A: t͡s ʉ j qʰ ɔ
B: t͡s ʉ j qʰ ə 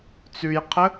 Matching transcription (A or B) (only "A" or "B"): B